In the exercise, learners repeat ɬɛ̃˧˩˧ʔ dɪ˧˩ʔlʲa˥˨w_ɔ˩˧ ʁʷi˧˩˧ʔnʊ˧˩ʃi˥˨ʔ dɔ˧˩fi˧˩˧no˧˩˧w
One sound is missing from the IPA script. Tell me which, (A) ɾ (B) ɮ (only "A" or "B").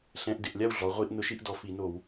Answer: B